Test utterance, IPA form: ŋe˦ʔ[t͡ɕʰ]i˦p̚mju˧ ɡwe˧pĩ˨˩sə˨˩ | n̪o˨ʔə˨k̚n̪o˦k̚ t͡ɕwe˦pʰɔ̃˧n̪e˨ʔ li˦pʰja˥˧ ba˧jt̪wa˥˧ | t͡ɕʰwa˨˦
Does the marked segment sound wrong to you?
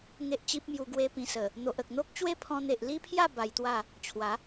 yes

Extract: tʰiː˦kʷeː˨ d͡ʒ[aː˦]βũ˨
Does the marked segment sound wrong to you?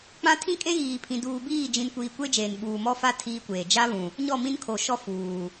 yes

